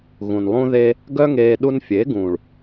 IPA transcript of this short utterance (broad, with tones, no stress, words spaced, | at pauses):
ɣũ˨nlˠũ˦ðeː˦ | ɡœ˦ŋeː˧ ɗu˧nfʲe˨˦ɡũː˨ɭ